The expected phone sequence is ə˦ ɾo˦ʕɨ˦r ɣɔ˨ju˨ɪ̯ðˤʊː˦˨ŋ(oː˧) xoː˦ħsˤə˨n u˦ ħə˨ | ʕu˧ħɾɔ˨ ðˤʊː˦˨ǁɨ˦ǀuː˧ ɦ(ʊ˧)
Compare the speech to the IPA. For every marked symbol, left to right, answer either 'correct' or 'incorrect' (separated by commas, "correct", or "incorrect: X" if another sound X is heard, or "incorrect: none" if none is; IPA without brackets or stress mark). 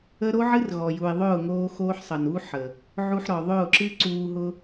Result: correct, correct